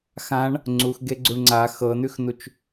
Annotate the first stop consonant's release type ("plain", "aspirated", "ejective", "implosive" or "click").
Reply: click